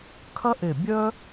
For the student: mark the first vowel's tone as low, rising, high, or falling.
high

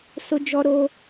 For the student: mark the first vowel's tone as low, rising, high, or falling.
high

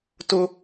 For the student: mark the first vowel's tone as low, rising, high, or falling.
high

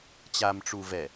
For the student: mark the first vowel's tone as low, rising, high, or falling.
low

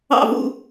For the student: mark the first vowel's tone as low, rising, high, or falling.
falling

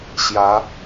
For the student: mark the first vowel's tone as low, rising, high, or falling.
rising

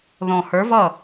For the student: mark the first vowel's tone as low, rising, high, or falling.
low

